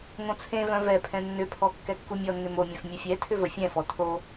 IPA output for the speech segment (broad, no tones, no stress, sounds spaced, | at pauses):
ŋ õ t͡sʰ ẽ v œ̃ v ɛ pʰ ɛ̃ nː ʏ pʰ ɔ kː ɛ kː u mʲ ɔ nː ʏ m o mʲ œ̃ f mʲ ə fʲ ɛ tʰ ʏ v ə fʲ ɛ̃ f ɔ tʰ o